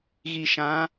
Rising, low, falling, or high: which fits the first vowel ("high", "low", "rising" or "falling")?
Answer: low